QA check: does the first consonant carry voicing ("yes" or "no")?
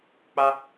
no